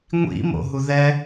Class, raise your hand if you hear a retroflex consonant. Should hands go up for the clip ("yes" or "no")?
no